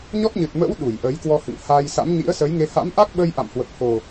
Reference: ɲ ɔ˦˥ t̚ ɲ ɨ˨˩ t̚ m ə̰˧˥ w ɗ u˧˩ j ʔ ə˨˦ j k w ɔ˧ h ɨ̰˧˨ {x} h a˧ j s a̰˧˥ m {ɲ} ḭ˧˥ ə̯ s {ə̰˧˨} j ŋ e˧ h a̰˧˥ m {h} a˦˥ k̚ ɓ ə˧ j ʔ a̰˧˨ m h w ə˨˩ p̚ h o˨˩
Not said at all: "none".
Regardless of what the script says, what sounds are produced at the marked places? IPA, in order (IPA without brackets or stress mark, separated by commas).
ŋ, ɲ, ə˨˦, ʔ